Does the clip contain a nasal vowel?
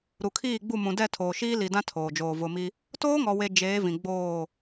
yes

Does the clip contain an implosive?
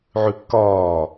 no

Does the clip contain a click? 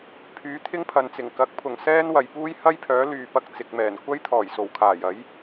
no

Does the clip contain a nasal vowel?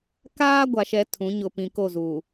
yes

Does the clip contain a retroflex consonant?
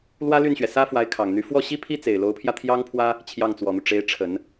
yes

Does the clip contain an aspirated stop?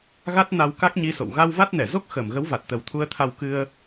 yes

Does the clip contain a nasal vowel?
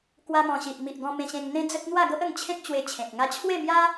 yes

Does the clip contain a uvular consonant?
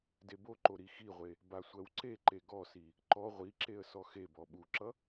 yes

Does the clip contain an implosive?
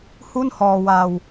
no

